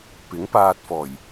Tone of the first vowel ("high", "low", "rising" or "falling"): rising